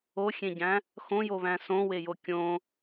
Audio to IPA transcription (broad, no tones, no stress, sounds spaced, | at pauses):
o xʲ ẽ ɟ æ̃ | x õ j o β æ̃ s õ w e j o kʲ õ